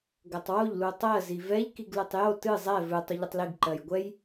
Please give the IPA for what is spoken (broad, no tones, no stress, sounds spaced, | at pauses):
ɡ ɜ tˤ w o ʎ l u tˤ ɜ z i v ɛ ʎ k i ɡ l ɨ tˤ j o t ɨ zˤ ɛ v ɨ tˤ u ʎ ə tˤ l i ɡ ǃ ɜ j ɡʷ ɛ j